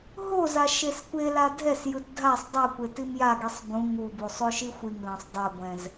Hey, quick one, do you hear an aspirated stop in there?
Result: no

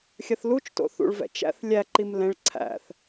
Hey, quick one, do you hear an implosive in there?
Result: no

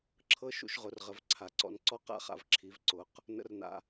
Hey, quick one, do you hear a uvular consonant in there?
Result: yes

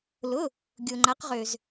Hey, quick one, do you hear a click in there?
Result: yes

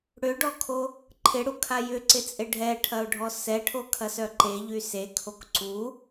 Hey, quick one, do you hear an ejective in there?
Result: yes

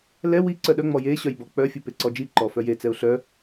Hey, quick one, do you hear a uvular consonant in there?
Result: no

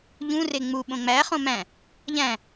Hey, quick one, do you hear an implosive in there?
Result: yes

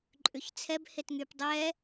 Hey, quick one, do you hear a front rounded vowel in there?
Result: yes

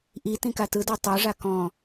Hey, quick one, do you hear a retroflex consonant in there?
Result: yes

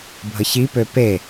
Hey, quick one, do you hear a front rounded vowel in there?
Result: yes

